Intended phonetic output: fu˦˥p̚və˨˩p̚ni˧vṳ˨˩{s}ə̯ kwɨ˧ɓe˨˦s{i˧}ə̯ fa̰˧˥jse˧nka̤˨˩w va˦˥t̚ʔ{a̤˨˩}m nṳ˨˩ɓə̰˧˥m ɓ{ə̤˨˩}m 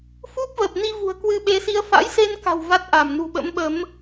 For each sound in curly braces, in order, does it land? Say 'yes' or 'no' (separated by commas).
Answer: no, yes, no, no